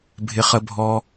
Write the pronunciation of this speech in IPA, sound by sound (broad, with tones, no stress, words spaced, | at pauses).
bʱɪ˨χə˨ bʱɔ˨